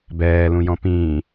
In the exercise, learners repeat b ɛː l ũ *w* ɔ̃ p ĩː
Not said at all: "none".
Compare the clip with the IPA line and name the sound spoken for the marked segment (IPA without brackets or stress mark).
j